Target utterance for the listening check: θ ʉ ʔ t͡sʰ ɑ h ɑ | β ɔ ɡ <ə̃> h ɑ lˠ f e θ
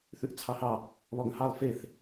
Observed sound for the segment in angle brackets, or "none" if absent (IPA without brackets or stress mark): ə̃